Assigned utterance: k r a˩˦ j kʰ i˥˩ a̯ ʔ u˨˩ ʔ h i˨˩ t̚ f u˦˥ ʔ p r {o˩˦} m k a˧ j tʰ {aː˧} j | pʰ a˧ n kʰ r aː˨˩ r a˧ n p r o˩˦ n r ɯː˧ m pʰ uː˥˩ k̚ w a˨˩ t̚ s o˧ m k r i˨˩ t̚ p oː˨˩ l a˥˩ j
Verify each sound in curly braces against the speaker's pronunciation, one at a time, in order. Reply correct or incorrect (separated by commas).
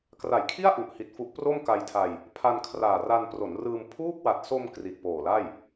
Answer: incorrect, incorrect